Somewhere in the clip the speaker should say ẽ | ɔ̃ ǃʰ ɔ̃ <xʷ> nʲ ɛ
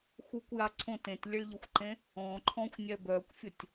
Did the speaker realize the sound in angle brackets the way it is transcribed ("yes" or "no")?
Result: yes